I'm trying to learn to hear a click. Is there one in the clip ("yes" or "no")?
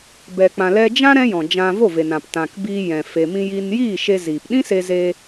no